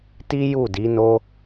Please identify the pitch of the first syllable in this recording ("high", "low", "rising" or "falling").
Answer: high